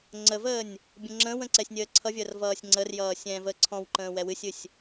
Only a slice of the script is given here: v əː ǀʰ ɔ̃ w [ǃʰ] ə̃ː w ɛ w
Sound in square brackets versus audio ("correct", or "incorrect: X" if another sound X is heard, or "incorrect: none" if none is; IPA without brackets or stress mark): incorrect: ǃ